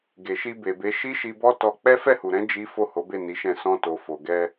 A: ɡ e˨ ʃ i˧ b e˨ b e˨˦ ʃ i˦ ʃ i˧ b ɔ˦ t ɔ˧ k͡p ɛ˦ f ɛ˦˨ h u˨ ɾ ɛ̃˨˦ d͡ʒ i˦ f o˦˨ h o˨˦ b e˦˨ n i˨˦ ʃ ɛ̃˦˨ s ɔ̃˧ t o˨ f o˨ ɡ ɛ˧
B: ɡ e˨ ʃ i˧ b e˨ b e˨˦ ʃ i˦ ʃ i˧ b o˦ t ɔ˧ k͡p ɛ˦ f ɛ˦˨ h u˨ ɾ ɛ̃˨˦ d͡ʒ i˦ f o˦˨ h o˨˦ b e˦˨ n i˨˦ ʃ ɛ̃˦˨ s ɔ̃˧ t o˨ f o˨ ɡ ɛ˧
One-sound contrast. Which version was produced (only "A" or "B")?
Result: A